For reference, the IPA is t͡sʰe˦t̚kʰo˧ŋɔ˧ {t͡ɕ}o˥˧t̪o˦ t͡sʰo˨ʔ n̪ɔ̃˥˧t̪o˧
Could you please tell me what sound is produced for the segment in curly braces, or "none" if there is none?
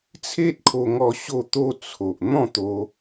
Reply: ɕ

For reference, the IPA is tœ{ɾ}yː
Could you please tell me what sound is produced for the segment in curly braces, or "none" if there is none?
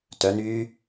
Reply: n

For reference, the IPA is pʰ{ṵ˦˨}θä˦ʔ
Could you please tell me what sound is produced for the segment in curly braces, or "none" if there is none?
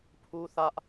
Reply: u˦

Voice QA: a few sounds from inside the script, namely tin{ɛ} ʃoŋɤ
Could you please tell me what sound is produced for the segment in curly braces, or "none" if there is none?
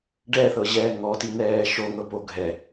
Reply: ɛː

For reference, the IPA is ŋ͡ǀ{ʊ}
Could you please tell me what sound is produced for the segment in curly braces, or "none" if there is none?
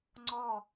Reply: ɔ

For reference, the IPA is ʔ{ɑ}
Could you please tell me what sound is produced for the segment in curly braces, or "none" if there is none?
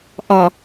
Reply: ɒ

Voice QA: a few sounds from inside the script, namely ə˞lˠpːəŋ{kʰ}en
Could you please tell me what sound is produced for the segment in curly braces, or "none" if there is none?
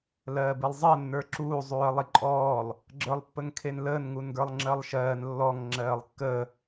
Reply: kʰ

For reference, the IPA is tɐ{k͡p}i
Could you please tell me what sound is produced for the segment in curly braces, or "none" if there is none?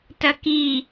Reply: k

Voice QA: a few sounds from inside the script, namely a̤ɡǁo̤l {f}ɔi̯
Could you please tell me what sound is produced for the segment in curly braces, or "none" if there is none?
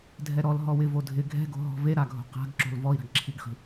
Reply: v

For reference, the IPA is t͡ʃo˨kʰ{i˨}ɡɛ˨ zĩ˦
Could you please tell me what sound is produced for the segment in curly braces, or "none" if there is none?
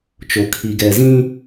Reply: i˨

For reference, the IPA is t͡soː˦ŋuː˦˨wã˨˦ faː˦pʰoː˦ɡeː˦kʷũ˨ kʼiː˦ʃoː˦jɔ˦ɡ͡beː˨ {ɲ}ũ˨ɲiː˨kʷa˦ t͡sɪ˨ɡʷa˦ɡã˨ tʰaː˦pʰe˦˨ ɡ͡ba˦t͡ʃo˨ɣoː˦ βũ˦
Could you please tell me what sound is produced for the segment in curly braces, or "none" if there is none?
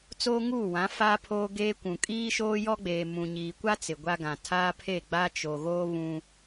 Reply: m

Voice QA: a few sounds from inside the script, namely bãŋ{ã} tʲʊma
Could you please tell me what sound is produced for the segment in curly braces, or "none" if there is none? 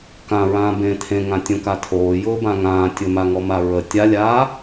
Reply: ãː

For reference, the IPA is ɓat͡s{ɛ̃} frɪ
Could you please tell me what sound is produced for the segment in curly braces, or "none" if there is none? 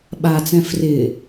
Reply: ɛ̃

